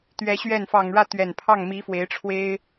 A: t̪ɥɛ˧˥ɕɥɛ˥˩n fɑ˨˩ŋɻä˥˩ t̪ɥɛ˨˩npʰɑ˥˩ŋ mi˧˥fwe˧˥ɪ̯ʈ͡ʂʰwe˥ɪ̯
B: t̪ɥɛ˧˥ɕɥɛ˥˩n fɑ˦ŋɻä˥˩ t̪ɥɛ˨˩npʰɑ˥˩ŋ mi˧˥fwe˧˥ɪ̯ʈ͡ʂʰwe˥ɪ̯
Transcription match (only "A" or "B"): A